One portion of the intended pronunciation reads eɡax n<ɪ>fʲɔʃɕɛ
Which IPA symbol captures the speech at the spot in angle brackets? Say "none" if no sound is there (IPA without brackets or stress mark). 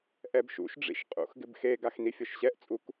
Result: i